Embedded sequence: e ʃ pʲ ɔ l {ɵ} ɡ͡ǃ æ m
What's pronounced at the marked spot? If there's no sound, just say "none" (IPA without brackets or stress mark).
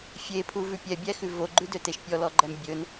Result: ɔ